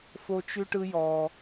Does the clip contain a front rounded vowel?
no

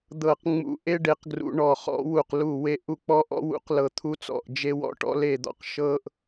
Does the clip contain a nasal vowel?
no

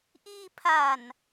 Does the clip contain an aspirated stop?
yes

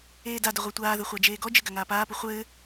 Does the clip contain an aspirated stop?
no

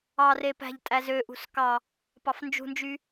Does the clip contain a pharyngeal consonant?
no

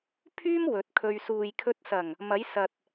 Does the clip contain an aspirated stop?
yes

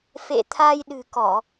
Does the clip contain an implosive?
yes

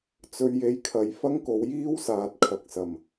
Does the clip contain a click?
no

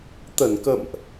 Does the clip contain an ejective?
no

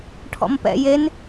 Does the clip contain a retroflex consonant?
yes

